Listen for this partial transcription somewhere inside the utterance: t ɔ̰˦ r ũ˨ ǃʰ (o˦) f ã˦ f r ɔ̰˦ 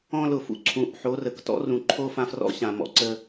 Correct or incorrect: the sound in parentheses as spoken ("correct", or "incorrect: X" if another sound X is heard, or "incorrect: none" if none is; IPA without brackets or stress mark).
correct